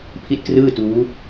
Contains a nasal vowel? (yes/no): no